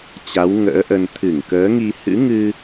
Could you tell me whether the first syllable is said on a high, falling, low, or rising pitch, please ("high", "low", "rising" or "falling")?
rising